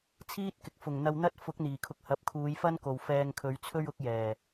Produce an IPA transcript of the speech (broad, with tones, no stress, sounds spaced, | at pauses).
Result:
t͡sʰ iː˥ t̚ k ɪ˨ k̚ f ʊ˨˩ ŋ n̪ ɐ˧ w n̪ ɐ˥ t̚ f ʊ˨˥ k̚ n̪ iː˨˩ kʰ ʊ˧ k̚ h ɐ˨˥ p̚ kʰ uː˨˧ j f ɐ˥ n k o˨ w f ɛː˧ ŋ kʰ ɵ˨˧ ɥ t͡sʰ ɵ˥ ɥ ʊ˨˥ k̚ j ɛː˨˩